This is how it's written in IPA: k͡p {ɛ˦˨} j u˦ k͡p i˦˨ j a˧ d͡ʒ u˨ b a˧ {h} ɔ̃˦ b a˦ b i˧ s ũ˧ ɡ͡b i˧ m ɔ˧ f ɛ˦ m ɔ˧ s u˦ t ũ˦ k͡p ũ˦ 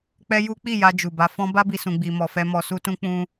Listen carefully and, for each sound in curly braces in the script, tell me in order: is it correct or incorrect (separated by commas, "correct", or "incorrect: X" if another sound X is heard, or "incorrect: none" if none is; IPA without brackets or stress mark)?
incorrect: ɛ˦, incorrect: f